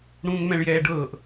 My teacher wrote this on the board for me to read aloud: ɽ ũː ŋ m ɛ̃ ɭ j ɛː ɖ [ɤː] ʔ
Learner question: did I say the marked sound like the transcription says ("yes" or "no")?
yes